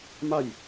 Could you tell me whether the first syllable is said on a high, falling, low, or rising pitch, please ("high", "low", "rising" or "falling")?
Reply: falling